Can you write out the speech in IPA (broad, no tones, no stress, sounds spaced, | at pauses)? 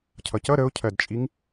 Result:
cʰ ʌ c ʌ ɾ ə ʊ̯ cʰ ɜ d t͡ʃʼ i ŋ